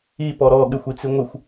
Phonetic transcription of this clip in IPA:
i p ɔ ɾ ɔ ɠ ɪ xʷ i t͡s i ŋʷ ɪ xʷ

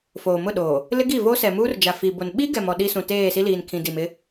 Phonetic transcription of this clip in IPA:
f oː˨ m ʊ˦˨ ɗ oː˨ | l ɪ˦ ɡ i˦˨ v o˦ s ɛ˨ m uː˦ r d͡ʒ a˨ f i˨ b o˨ n ɓ i˦ ɡ ɛ˨ m ɔ˨ ɗ i˦ s ũ˨ t eː˦˨ s i˦ l iː˨ n kʰ ĩ˨ d i˨ m ɪ˦

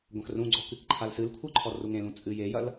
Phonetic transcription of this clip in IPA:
ɡʷ ɐ̃ x r ũ ɡ͡ǀ ɔ k ɨ k ǃʰ a l s ɨ l kʷʰ ɯ ǃʰ ɔ r u ŋ ẽ l ũ t͡sʼ ɨ j e j ɐ l

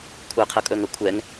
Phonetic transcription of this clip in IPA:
kʷʰ əː qʰ ɤ kʼ ɵː ŋ əː kʷʰ ɛ ŋ

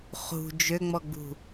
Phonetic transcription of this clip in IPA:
χ ṳ d͡ʒ ø ŋ͡m ɔ ɡ͡b ṳ

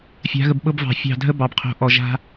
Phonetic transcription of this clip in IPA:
fʲ a̤˨˦ ɣ ə˨ b ɓ ɤ˦ b v ɑ̤˨ fʲ ɑ̤˦˨ dʱ ə˦ b ɑ˨ b qʰ o̤˨˦ ʔ ɔ˨ ʒ a̤˦

